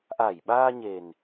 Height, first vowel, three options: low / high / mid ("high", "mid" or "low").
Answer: low